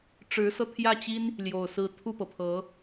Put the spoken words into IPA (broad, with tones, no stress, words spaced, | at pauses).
ʈ͡ʂɻ̩˧˥sɤ˧t̪ʰjä˥˩t͡ɕi˥n | ljo˨˩ʊ̯sɹ̩˧˥ t̪ʰu˥˩pɤ˩pʰɤ˧˥